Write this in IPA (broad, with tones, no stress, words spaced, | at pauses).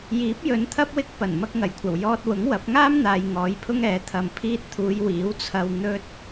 jiː˨˥p̚jɵ˨˧nt̪ʰɐ˥p̚wɪ˧k̚ pɐ˨˩n mɐ˧k̚ŋɐ˨˩jkʷʰɐ˨˩w jɔː˧t̚ wʊ˨˥ŋwɐ˨˥p̚ ŋaː˥mn̪aː˨j ŋɔː˨˥jpʰʊ˥ŋɛː˨˥ t̪ʰɐ˨mpʰiː˧t̚t̪ʰuː˨˧j wiː˨˥wt͡sʰɐ˧w n̪ɵ˥t̚